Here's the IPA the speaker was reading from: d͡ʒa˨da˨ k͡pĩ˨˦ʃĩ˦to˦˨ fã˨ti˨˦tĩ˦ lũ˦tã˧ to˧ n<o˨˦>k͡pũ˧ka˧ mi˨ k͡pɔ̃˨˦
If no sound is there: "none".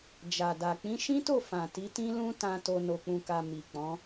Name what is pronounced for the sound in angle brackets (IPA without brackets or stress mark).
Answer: o˧